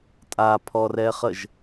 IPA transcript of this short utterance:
tʼ a pʰ ɔ r ɛ χ ə ʒ

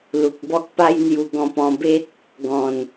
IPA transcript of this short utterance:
l u˨ k̚ b ɔ˦ k̚ p a˦ j n̪ j u˧ ɡ ɔ̃˧ p ɔ̃˧ b e˦ t̚ | ɡ ɔ̃˨˩ n

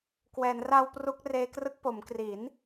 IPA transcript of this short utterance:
k w ɛː˩˦ n r a˧ w p r u˦˥ k̚ r eː˦˥ k r ɯ˦˥ k̚ p o˩˦ m k r i˩˦ n

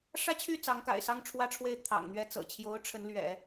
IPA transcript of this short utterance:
ʂ ä˥ t͡ɕʰ y˥˩ t͡s ɑ˧˥ ŋ k a̰˨˩ ɪ̯ s ɑ˥ ŋ ʈ͡ʂʰ w ä˥ ʈ͡ʂʰ w e˥˩ ɪ̯ t̪ʰ ɑ̰˨˩ ŋ n̪ ɥ ɛ˥˩ t͡s ɤ̰˨˩ t͡ɕʰ j o˧˥ ʊ̯ ʈ͡ʂʰ ə˧˥ n l ɥ ɛ̰˨˩˦

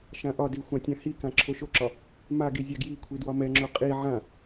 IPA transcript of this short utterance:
ʃ ã ʔ ɒ d i xʷ ã tʲ ã h i k ã ǁʰ o ʃ o ǁ ɒ | m a ɡ i zʲ a ɡ j i kʷʰ i d w ɒ m ɛ ŋ͡ǁ o qʼ i ʕ ã

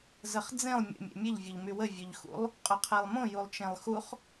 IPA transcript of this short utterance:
z ə χ d͡z ẽ lˠ mʲ ə̰ mʲ ḛ mʲ ɘ ʎ vʲ o ʎ m y w ə vʲ ɵ ʎ x ṵ lˠ | qʼ ɵ qʰ e lˠ m õ j u lˠ t͡ʃ ẽ lˠ x u χ

